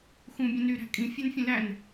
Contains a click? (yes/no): no